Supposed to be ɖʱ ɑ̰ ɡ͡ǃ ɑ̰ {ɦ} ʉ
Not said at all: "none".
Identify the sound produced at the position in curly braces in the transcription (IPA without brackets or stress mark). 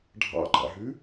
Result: ɦ